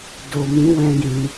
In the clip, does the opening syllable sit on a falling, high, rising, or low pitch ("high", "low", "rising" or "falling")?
low